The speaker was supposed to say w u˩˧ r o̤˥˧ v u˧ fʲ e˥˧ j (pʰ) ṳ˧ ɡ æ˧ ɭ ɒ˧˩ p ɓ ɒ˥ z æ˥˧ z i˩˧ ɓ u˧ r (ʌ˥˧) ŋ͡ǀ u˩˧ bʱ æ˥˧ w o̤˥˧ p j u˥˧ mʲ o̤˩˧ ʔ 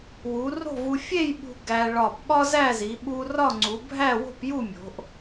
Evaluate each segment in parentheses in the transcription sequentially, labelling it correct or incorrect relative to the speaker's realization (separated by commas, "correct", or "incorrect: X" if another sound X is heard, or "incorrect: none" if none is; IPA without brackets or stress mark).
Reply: incorrect: ɓ, incorrect: ɒ˥˧